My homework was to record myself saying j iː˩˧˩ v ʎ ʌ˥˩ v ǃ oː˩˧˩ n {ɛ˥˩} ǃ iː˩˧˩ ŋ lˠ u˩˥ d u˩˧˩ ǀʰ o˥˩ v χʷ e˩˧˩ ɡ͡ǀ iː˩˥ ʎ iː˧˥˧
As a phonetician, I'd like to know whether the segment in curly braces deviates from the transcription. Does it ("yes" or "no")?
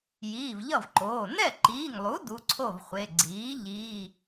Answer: no